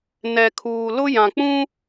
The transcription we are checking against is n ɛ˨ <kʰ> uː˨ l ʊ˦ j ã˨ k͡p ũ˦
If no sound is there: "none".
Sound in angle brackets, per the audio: kʰ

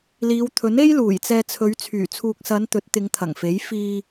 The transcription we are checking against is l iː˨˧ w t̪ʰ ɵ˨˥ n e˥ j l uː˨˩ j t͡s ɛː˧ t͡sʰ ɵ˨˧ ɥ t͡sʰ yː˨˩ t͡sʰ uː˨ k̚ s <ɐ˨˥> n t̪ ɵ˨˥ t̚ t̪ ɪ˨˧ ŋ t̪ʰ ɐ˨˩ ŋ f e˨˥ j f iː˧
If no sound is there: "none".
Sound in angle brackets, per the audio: ɐ˨˧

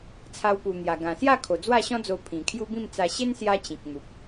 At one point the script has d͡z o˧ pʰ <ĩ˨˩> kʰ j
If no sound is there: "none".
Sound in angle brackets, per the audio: ĩ˨˩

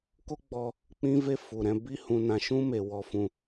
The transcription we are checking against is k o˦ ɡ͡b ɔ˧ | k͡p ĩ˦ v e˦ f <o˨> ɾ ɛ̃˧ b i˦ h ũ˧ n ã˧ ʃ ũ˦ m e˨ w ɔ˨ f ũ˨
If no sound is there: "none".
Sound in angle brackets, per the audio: u˨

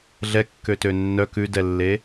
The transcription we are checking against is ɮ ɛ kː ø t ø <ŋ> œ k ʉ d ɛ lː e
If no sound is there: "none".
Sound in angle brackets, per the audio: nː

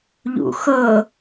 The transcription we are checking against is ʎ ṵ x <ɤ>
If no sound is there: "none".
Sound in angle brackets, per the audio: ɤ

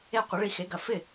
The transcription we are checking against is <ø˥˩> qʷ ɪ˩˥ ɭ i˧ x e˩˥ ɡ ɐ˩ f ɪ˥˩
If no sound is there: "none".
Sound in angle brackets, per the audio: e˥˩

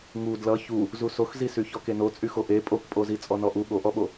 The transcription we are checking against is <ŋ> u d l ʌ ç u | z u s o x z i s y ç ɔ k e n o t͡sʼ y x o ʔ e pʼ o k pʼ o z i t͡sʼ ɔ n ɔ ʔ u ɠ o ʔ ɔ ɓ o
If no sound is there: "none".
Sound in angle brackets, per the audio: ŋ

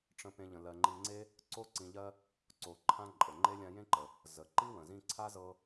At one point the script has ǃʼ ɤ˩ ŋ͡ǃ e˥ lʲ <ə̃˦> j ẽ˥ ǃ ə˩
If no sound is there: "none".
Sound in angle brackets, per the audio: ã˦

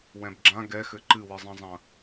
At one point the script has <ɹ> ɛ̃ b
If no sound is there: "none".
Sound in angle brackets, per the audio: w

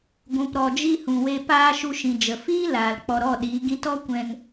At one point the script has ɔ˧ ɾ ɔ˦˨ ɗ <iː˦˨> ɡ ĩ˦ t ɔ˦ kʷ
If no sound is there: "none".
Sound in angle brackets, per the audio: iː˨˦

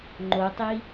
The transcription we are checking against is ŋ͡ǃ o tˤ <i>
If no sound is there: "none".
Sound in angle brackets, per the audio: i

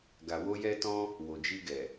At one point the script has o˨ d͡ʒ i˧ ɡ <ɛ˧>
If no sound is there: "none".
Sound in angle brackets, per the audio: ɛ˨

